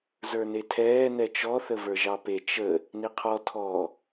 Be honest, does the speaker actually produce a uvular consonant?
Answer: yes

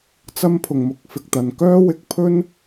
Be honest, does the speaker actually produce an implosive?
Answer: no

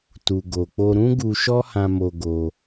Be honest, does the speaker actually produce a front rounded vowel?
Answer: no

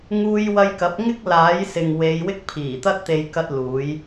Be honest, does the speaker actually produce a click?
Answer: no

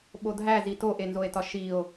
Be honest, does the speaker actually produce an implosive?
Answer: yes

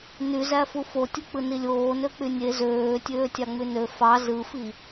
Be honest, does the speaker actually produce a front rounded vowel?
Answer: yes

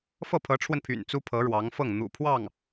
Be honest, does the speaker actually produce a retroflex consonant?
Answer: yes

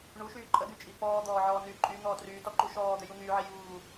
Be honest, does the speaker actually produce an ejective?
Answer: yes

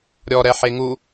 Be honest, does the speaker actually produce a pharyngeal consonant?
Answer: yes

